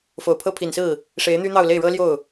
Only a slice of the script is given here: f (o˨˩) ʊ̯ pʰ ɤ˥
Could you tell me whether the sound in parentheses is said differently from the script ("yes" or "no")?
no